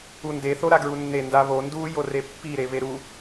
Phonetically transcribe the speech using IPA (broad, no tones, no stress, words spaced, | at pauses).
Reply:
unde θoɾaɡɹunːe ndaβo ndu jorepːi ɾeβeɾu